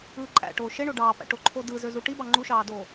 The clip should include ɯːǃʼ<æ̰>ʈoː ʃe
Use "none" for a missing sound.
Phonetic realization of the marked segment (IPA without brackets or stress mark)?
æ̰